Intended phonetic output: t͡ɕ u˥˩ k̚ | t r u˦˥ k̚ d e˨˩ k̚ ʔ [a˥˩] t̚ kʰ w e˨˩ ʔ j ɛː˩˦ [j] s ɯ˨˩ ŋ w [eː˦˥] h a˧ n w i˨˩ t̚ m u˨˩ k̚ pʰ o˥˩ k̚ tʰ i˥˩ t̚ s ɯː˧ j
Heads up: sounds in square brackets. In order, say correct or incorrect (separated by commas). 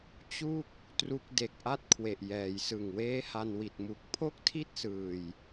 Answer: correct, correct, correct